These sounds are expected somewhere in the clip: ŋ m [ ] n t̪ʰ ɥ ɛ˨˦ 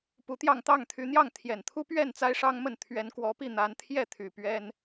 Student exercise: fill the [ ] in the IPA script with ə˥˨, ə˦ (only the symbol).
ə˥˨